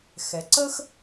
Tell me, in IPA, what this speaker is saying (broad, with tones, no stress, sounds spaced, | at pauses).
x ɛ˩˧ ǀ ə˥ x